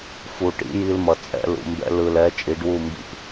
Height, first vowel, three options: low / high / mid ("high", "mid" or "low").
high